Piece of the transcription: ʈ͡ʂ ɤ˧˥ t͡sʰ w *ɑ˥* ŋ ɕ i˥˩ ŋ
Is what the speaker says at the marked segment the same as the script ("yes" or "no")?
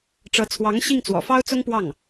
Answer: no